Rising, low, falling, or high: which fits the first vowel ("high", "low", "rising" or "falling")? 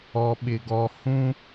low